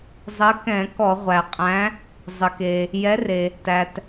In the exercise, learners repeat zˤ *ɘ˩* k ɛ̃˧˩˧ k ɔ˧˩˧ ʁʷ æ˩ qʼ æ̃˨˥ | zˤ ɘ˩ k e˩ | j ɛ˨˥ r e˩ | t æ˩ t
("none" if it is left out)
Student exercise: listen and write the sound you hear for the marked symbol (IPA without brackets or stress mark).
ɘ˨˥